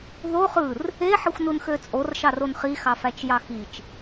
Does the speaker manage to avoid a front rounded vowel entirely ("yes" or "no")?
no